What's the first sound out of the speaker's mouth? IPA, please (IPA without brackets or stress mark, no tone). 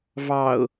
v